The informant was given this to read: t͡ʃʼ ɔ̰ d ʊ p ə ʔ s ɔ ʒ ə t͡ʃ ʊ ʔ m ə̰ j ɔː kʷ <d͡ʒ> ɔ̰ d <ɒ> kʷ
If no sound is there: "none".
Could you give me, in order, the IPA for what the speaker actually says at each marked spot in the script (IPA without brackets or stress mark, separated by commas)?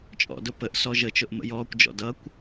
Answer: d͡ʒ, ʌ